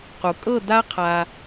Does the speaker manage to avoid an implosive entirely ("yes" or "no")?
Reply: yes